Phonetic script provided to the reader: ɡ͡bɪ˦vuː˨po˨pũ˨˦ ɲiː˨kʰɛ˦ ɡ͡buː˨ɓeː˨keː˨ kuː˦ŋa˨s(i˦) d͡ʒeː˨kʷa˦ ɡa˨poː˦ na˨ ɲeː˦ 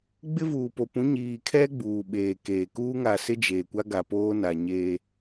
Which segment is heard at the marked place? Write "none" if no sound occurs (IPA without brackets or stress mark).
ɪ˦